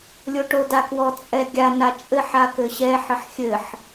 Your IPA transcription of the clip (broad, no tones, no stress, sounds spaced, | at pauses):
lʲ o ʈ o d a k w ɔ t͡sʼ ɛ ɡʲ a n a t͡ʃʼ ɘ ħ a k ɘ ɕ ɛ ħ ɘ ħ xʲ ɘ ħ